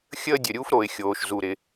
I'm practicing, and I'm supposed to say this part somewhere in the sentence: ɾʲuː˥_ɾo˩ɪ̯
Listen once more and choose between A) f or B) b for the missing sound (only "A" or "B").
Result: A